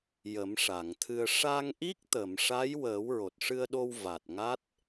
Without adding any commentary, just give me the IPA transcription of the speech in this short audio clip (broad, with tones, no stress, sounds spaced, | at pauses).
j ə˨˩˦ m ʂ a˨˩˨ ŋ t̪ʰ ɨ˧ ə̯ ʂ a˧ ŋ ʔ i˦˥ k̚ t̪ ə˨˩˨ m ʂ a˧˥ j w əː˨˩˦ w ɹ o˨˩ t̚ ʂ ɨ˧ ə̯ ɗ o˧ w v a˨˩ t̚ ŋ a˦˥ t̚